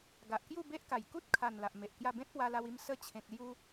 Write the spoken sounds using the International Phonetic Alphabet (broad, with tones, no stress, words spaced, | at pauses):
ɡa˨ʔkju˥˧be˦ʔka˨˩j ku˦t̚kʰa˨˩n la˨ʔme˨ʔkja˥˧ bẽ˦t̚pwa˧la˧wi˧m sə˥˧ t͡ɕʰẽ˨k̚lju˧